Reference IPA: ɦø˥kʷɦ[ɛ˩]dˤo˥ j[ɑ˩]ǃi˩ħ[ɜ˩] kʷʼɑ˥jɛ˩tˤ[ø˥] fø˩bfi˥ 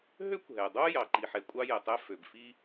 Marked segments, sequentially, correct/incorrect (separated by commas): correct, correct, incorrect, incorrect